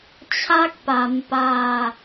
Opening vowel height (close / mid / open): open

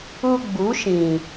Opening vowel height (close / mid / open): close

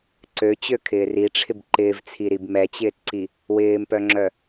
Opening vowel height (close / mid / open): mid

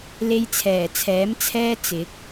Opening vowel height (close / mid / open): mid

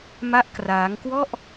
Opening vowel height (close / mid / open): open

